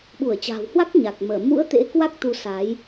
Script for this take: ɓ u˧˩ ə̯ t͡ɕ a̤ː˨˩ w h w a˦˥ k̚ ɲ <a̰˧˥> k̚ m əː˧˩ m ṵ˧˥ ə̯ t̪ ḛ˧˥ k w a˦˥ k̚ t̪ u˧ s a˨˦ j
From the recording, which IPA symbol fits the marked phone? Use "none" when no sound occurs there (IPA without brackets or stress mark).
a˨˩